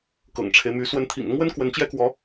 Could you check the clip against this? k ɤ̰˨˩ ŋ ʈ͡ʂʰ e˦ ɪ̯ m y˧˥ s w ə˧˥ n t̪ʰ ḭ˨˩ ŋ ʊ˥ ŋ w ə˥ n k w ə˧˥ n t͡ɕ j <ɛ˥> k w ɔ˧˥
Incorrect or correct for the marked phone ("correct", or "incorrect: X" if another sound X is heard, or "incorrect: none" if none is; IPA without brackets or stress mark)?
correct